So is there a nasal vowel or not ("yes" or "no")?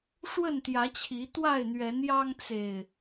no